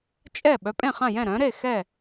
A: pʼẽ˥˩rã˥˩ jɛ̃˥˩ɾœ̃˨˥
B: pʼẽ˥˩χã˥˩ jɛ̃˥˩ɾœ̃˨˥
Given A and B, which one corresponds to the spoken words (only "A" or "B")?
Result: B